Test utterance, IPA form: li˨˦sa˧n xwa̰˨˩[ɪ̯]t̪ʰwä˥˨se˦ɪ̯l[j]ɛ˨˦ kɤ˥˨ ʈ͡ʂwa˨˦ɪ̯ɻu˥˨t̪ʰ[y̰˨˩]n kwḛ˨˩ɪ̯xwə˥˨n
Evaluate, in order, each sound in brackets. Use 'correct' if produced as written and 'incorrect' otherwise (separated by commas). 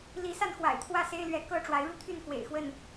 correct, incorrect, incorrect